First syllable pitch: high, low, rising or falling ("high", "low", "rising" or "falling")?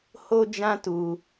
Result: high